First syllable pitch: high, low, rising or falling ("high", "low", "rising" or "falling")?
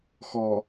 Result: low